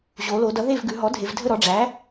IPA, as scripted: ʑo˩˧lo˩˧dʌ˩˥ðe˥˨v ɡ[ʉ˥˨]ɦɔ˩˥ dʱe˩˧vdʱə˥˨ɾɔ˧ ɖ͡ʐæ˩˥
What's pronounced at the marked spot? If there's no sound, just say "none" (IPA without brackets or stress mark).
ʉ˩˧